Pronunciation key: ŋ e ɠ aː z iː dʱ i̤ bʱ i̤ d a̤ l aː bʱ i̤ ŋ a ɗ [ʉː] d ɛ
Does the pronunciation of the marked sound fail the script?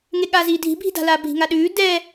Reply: no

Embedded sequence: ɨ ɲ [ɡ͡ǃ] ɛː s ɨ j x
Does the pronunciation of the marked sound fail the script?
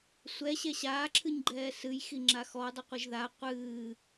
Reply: no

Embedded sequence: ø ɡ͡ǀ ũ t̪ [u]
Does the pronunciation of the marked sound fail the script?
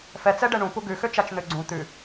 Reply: yes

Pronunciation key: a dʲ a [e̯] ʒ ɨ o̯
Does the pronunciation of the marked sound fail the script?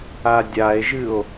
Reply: no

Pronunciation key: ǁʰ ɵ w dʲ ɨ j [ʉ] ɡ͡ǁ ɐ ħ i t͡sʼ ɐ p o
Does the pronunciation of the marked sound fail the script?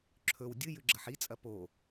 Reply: no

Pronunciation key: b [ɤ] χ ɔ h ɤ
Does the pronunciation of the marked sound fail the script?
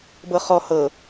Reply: no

